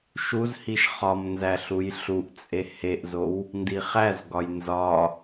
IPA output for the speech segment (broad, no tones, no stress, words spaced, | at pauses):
ʃuzhiʃ χɒmnzæ ɬujɬuʔt͡sʼe heʔzow | ndiχæzɡɒj nzɒ